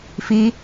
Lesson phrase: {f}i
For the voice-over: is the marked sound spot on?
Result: yes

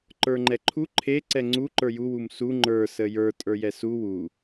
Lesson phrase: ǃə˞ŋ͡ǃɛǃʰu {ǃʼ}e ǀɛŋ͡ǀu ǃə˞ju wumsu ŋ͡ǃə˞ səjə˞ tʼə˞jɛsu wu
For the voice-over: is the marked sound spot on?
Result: no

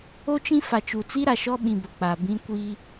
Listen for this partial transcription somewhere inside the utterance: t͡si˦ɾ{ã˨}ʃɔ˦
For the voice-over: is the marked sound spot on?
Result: no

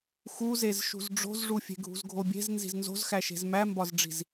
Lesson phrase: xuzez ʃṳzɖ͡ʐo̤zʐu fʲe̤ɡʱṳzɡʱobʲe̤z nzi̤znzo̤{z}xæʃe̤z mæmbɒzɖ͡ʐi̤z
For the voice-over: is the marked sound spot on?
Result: yes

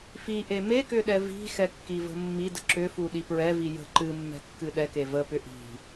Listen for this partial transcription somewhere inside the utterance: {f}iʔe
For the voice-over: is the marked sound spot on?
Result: yes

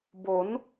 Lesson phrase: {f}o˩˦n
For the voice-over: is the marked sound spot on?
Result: no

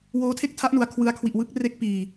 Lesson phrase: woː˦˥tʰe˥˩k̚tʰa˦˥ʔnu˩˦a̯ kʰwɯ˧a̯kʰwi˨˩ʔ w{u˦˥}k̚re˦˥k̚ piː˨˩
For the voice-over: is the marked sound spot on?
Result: no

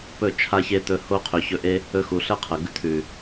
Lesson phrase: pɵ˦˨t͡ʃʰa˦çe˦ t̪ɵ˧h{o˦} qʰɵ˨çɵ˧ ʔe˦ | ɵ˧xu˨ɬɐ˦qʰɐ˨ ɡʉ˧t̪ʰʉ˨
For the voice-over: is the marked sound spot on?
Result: yes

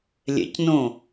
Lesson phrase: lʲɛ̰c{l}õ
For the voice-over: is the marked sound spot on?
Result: no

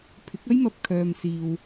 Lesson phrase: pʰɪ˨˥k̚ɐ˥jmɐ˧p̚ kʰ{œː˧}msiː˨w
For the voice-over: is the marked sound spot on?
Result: no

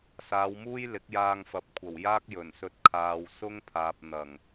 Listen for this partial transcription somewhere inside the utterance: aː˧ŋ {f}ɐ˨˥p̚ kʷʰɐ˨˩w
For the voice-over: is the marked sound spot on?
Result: yes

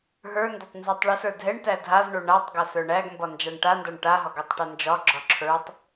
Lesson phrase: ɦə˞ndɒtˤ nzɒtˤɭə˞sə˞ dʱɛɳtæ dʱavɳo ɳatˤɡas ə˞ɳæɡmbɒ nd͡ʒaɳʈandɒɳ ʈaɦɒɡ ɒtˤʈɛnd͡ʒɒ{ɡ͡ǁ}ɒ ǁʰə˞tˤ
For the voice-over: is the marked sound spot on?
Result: yes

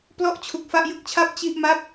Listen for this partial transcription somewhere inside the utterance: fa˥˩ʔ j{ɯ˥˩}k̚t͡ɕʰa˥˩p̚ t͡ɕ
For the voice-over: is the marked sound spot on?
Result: yes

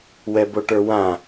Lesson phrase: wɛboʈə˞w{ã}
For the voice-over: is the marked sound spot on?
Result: yes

